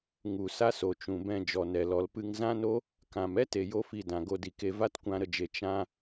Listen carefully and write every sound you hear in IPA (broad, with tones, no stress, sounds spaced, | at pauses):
ŋ u˨ s a˦ s o˨ t͡ʃ ũ˨ b ɛ̃˧ d͡ʒ ɔ˨ n ɛ˨ l ɔ˨ l p ɨ˧ ŋ z ã˦ n o˦ | k ã˨ m ɛ˦ t e˨ j o˦ f i˧ d ã˨ ɡ o˧ d i˨ k e˧ v a˦ t kʷ ã˧ ɾ ə˧ d͡ʒ e˨ t͡ʃ ã˦